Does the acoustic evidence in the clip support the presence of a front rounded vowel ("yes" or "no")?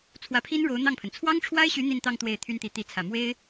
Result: yes